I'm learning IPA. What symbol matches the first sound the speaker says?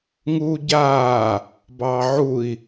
ŋ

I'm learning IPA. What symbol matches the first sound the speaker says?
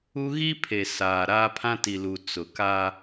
u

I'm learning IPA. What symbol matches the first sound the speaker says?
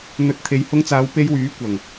n̪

